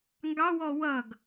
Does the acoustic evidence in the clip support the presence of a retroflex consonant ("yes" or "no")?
no